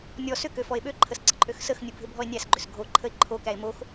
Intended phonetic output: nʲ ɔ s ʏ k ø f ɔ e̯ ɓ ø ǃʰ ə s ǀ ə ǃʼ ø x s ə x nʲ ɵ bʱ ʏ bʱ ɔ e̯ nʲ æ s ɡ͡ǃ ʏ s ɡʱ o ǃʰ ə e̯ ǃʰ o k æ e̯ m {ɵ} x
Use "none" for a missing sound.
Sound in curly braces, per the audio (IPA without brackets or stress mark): o